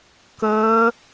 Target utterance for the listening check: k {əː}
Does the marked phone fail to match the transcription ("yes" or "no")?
no